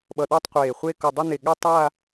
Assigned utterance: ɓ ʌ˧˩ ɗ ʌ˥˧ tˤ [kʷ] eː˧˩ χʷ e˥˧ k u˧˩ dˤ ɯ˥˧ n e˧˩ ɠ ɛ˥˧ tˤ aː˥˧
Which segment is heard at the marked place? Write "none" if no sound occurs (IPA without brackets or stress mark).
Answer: qʷ